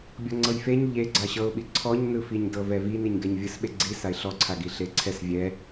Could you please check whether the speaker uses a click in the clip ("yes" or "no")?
yes